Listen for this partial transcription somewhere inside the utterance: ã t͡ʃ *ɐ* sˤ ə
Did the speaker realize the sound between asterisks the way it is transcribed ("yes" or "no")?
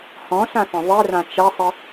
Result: yes